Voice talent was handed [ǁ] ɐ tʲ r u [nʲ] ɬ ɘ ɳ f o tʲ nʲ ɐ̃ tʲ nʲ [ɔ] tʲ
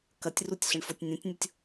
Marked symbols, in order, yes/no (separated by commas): no, no, no